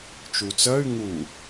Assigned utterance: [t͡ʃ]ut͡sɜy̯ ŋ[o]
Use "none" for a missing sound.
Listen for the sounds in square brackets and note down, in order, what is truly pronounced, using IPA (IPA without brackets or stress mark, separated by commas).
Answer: t͡ʃ, u